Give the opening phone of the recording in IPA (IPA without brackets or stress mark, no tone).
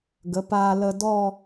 ɡ